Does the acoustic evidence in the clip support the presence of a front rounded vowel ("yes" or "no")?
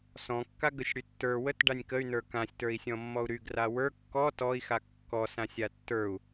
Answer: yes